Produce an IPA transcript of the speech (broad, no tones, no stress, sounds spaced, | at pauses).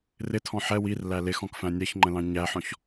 r ɪ tʰ ɔ̃ ħ ɛ w i r l æ l ɪ x ɔ̃ k f æ̃ nʲ ɛ ç ŋ͡ǃ ə̃ l ɑ̃ ɲ æ ħ ɔ̃ ç